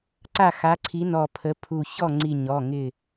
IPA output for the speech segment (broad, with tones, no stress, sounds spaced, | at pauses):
ǀ a˥˩ x a˨˥ ǀʰ i˨˥ n ɔ˧˩ pʰ ə˨˥ pʰ u˧˩ ç ɔ˥˩ ŋ͡ǀ i˧˩ ɲ ɔ˩˧˩ ŋ ɪ˧˩